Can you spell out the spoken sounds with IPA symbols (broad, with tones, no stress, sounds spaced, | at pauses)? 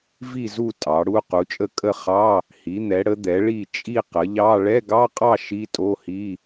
v i˥˨ z u˥˨ tʼ ɑ˩˥ ɽ u˧˥˧ q u˩˥ t͡ʃʼ ə˥˨ kʼ ə˥˨ χ ɑ˧˥˧ | h i˩˥ n̪ ɛ˩˥ ɽ ə˩˥ d̪ ɛ˩˥ ɭ i˥˨ t͡ʃʼ i˥˨ q ə˩˥ ʎ ɑ˧˥˧ ɭ ɛ˧˥˧ ɡ ɑ˧˥˧ qʼ ɑ˥˨ ʃ i˧˥˧ tʼ o˧˥˧ h i˧˥˧